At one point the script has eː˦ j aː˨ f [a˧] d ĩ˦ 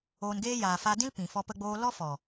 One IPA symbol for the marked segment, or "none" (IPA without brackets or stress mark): a˧